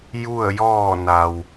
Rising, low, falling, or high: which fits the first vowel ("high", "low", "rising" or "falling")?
falling